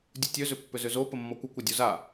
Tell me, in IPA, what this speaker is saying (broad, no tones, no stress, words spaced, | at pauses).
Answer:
dʲutʲøzʏ pːʏzʏzo pəmːɔkʷəkʷɐ dʲuza